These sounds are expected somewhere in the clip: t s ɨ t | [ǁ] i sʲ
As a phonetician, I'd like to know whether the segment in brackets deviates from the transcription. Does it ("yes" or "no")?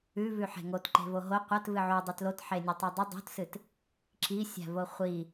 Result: no